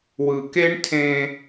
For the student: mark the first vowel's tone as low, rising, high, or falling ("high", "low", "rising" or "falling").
low